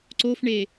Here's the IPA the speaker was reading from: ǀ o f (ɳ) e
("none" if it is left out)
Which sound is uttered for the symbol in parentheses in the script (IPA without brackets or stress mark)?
ɳ